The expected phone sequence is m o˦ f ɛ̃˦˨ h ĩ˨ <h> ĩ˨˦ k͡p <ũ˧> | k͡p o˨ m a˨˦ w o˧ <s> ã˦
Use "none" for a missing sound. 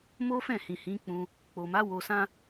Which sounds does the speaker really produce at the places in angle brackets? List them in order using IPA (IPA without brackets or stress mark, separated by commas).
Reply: h, ũ˧, s